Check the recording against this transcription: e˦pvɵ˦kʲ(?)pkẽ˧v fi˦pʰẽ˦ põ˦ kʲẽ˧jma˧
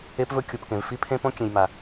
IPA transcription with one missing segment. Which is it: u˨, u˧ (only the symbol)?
u˧